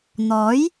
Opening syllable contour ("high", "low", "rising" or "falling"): rising